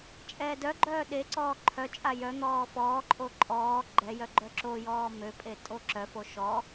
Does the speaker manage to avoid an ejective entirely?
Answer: no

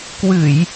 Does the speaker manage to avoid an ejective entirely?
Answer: yes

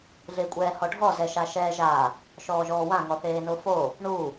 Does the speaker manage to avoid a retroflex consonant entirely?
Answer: no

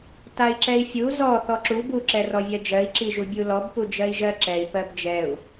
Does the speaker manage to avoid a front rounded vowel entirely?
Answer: yes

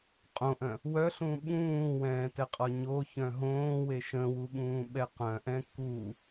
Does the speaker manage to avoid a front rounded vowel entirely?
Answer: no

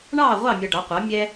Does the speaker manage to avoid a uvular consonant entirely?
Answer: no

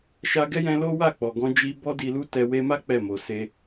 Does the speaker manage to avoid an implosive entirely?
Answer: yes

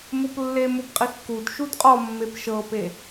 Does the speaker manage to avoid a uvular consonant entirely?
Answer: no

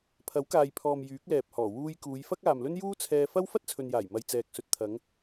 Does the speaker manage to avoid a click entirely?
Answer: yes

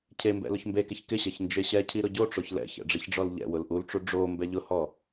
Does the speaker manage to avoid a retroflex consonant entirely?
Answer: no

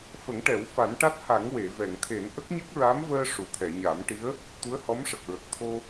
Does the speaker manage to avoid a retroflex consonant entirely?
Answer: no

